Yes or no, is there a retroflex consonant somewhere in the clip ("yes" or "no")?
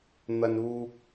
no